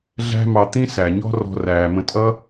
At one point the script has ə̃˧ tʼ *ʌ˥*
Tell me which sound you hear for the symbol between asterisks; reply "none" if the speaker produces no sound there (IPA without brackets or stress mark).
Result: ʌ˥